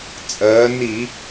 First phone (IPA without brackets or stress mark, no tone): t͡sʼ